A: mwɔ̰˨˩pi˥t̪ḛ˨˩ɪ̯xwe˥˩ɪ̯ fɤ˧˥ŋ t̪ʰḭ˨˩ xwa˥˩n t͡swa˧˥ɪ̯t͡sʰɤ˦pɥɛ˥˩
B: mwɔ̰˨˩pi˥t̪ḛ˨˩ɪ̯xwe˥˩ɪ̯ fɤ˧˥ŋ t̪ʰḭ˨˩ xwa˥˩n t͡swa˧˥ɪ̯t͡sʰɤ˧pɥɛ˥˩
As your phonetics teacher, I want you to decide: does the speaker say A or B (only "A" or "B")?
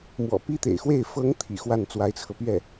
B